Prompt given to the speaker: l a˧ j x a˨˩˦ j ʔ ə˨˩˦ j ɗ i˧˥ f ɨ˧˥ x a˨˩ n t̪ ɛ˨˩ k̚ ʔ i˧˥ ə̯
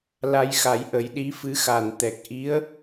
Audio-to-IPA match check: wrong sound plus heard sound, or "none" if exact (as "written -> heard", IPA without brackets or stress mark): none